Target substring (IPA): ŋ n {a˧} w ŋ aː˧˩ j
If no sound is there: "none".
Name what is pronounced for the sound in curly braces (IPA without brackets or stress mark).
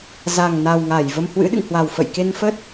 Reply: a˨˩